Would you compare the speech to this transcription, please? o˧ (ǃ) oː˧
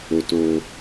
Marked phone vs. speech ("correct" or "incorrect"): incorrect